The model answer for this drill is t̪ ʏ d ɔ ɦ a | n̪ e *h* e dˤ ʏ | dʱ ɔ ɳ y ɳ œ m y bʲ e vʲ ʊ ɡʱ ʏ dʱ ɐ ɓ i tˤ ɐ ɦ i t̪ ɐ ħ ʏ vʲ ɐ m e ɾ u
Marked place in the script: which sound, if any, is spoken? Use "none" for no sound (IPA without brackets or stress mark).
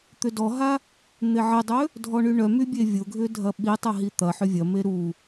ʕ